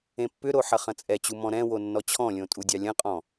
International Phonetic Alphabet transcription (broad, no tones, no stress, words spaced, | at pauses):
ẽpːʏɾo ħɐχɐ̃t͡sʼɛt͡ɕu mɔ̃ɾɛ̃wo nːɔt͡ɕʰɔ̃lʲõ tʼudʲɑlʲɐ̃qʼɔ̃